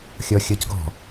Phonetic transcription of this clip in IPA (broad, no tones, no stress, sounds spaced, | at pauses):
xʲ ɔ xʲ ɤ c ɡ ɔ̤